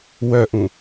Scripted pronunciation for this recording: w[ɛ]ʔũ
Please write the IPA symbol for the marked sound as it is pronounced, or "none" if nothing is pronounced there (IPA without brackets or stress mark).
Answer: œ